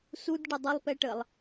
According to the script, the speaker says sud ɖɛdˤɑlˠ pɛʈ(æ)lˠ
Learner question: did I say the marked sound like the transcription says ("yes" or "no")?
no